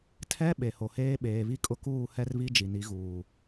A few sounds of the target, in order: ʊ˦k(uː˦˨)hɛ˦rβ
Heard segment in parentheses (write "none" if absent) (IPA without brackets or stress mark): uː˦˨